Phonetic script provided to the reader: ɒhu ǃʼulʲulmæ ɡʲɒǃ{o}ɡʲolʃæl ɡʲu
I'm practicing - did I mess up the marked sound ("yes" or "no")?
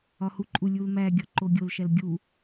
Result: no